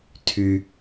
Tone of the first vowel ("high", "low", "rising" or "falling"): low